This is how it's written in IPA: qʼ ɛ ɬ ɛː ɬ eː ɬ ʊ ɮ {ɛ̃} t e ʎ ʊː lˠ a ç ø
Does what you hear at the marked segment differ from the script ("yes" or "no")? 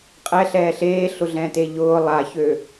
no